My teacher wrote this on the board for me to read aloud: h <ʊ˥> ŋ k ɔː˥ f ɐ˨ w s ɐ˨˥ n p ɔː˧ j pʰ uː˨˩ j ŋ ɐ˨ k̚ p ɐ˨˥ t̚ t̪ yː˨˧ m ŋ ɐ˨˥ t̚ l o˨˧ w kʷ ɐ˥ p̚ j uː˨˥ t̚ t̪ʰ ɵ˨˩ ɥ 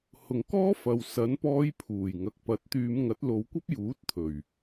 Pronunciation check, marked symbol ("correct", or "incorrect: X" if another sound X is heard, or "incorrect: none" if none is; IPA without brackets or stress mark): incorrect: ʊ˨